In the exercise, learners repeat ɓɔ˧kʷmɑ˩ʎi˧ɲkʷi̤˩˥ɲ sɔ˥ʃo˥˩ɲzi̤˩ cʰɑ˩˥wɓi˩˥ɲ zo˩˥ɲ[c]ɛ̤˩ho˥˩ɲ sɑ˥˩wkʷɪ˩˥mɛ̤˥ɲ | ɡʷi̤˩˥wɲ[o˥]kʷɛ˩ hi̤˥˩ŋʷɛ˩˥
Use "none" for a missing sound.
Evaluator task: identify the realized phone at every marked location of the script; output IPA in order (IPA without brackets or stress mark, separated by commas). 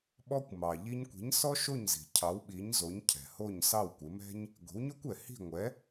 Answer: cʰ, o˥